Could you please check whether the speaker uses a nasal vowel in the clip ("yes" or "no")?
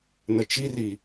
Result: no